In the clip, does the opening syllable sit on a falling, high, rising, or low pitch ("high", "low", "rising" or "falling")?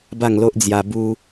falling